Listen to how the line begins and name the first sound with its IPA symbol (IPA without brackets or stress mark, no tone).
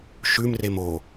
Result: ʃ